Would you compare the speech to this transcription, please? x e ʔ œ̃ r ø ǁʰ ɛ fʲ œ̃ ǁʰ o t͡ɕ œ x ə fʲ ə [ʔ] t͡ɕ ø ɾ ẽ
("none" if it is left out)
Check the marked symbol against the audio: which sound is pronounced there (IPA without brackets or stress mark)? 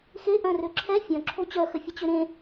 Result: none